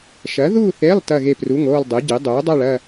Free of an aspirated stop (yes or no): yes